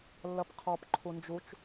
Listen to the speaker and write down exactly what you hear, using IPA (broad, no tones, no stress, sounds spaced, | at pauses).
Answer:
lː ɐ p qʰ ɔ p ǃʰ u n d͡ʒ u t͡ʃ